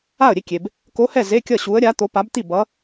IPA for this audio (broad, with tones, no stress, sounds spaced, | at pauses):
a˥˨ ə̯ ɾʲ e˥˨ kʲ e˨ b | k o˧˥ h ɛ˥˨ z e˧˥˧ kʲ ʌ˥˨ ɕ u˧˥ ə̯ ɾʲ a˧˥ t̪ o˧˥ p a˧˥ b t̪ i˥˨ b ʌ˧˥